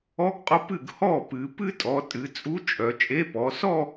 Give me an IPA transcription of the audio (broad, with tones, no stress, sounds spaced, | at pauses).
ɔ˧˥ ɡ qʼ o˧˥ p ɨ˥˩ ɡ h ɔ˥˩ p ɨ˩˧ p ɨ˥˧ tʼ ɔ˩˧ tʼ ɨ˩˧ t͡sʼ u˧˥ t͡ʃʼ œ˩˧ t͡ʃʼ e˧˥ p ɔ˩˧ s ɔ˥˧